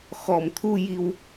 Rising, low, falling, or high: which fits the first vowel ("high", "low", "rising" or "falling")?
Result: low